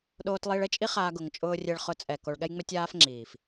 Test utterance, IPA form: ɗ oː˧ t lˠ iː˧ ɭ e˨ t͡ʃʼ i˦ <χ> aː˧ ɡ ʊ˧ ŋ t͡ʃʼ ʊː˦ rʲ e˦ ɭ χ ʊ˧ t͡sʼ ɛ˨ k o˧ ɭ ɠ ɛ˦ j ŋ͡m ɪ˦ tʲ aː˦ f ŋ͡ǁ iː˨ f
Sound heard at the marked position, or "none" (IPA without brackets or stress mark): χ